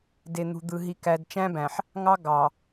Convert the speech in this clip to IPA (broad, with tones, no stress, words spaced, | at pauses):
de˨n̪ṳ˨d̪ɯ˨ɦi˨ kæ˨dt͡ʃæ̃˦bæ̃˨ħ | ŋɑ˦ ɡɑ˨